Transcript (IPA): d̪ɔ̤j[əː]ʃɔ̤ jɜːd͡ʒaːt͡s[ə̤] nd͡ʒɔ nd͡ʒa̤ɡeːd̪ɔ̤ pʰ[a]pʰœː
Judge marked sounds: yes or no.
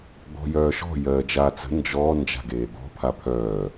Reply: no, yes, yes

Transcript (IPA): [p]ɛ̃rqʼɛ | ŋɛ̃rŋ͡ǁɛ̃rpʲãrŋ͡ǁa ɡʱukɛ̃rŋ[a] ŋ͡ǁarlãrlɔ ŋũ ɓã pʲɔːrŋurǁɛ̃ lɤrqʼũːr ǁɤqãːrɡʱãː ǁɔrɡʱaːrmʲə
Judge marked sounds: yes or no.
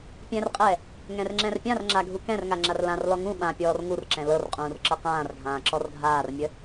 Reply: no, yes

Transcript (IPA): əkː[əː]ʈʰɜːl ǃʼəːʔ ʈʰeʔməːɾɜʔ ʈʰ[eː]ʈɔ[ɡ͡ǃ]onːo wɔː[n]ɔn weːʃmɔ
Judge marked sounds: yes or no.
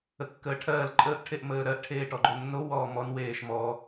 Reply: yes, yes, yes, no

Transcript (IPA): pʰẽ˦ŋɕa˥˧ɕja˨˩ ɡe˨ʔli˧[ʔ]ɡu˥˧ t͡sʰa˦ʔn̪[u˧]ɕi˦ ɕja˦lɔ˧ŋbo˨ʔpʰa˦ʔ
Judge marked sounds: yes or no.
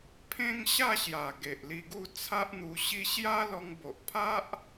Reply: no, yes

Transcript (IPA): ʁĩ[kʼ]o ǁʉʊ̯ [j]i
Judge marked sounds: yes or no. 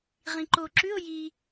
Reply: no, yes

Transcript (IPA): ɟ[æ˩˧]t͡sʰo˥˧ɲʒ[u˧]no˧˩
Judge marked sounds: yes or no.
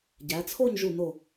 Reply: yes, no

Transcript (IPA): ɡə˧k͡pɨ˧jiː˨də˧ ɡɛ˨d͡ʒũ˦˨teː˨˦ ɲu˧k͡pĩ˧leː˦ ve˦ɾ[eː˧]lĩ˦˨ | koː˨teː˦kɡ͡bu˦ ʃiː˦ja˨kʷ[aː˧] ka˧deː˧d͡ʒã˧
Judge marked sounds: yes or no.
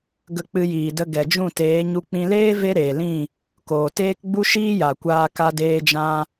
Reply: no, yes

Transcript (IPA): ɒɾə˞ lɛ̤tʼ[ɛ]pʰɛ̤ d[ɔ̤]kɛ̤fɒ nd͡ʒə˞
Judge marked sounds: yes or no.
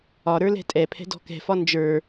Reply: yes, yes

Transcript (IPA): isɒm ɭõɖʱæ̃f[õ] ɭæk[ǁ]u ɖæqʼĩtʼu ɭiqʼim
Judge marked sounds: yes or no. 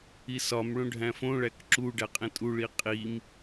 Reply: yes, yes

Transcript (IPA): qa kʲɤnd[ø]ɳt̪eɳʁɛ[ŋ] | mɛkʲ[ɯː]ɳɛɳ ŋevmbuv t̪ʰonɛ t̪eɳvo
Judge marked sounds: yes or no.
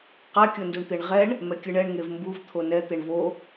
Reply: no, no, no

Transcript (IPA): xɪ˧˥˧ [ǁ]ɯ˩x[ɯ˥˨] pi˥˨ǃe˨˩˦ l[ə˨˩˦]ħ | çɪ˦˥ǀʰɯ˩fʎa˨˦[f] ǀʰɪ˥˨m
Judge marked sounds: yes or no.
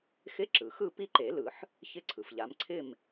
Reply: yes, yes, no, no

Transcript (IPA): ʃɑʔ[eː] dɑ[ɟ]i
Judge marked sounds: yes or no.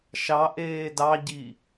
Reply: yes, yes

